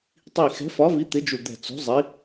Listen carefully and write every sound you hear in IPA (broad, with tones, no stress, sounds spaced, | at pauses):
tˤ i˧˩ x ɛ̤˨˥ f ɒ˨˥ v i˨˥ t̪ ɪ˨˥ d͡ʒ u˧˩ d̪ ɛ̤˧˩ t͡s ṳ˨˥ zˤ i˨˥